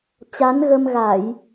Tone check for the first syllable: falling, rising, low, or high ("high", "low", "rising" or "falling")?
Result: rising